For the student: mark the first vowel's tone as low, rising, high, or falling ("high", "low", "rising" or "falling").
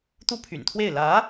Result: high